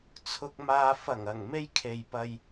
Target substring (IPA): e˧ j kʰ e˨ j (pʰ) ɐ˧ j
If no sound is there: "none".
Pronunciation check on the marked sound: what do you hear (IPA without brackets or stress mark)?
p